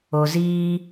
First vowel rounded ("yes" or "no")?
yes